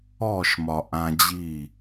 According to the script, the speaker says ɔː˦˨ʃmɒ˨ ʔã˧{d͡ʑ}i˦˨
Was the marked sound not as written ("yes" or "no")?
no